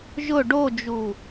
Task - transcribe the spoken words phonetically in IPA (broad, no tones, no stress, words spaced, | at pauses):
ʒʊ ɖod͡ʒu